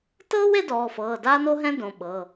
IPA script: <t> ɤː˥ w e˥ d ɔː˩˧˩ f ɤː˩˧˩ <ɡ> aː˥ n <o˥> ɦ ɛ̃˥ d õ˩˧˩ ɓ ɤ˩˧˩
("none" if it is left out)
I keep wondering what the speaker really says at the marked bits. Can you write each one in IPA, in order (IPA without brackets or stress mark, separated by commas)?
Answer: t, d, o˥